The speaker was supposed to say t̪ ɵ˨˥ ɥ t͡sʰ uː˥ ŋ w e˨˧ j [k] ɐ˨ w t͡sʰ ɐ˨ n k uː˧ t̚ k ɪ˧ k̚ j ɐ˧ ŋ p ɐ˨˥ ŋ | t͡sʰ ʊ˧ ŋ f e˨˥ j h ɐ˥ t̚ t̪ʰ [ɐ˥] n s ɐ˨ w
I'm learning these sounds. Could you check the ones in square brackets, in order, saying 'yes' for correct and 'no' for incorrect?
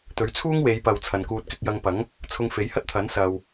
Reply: no, no

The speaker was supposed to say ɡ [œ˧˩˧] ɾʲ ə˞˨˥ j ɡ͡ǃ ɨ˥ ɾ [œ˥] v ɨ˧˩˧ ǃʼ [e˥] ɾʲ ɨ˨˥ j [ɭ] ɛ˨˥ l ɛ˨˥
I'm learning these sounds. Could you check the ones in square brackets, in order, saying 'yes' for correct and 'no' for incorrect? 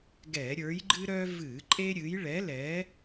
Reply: no, yes, yes, yes

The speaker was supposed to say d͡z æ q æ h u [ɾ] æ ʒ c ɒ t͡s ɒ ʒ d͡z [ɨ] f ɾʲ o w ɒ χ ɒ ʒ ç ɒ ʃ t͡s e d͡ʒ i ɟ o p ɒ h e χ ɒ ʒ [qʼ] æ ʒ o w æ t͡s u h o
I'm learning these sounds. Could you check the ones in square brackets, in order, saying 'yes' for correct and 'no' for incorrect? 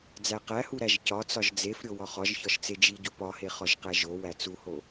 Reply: yes, no, no

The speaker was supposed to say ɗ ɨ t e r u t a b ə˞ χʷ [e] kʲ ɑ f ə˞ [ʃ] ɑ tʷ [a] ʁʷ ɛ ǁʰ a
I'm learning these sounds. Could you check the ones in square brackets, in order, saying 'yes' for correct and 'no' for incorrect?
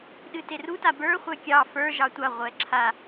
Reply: no, no, yes

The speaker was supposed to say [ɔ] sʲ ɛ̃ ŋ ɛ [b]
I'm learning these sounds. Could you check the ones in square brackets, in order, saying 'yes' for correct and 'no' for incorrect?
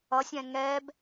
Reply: no, yes

